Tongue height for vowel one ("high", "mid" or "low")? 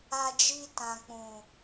low